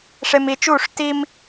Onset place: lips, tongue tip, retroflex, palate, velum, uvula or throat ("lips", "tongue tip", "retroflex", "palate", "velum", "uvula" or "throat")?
retroflex